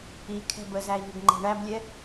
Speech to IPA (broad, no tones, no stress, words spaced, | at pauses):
i kʰɛ̤bəzæi̯ ŋəɡŋ͡ǃɛ̤ɳæblʲɛ